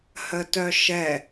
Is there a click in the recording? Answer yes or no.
no